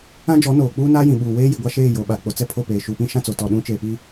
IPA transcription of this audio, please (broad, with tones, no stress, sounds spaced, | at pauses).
ã˦ d͡ʒ ɔ˨˦ n oː˨ k͡p uː˦ n aː˦ j ĩ˨ ɓ uː˨ w eː˦ j i˨ ɡʷ a˦ ʃ eː˦˨ j o˨ ɓ a˨ k͡p o˨ t͡s ɛ˦ pʰ o˦˨ p eː˨ ʃ u˨ p ĩ˦ ʃ ã˦ t͡s o˨ t ɔ˦˨ ɗ ũ˦ t͡ʃ eː˨ p i˦